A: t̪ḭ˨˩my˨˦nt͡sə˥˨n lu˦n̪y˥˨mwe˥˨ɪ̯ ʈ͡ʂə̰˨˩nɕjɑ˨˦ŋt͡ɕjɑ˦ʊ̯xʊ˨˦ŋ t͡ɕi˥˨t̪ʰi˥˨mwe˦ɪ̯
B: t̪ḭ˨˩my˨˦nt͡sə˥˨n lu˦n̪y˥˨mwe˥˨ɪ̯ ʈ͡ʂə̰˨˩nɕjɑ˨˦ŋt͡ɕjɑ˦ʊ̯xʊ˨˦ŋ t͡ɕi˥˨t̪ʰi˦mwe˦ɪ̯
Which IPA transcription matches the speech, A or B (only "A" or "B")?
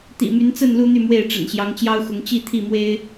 A